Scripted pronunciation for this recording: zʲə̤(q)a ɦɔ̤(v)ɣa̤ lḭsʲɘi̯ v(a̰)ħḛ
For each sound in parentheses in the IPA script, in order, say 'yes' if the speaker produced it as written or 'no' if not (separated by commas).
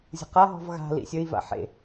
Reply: yes, yes, yes